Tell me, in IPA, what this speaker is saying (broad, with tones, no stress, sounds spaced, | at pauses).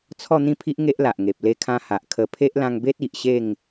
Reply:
t͡sʰ ɔ˥˧ n̪ ĩ˥˧ pʰ i˦ ʔ ŋ e˦ ʔ l a˨ ʔ ŋ e˨ p̚ l e˧ kʰ ã˧ h a˨ ʔ kʰ ə˧ pʰ e˦ ʔ l ã˧ ŋ b e˦ t̚ i˨ ʔ ɕ e˥˧ ŋ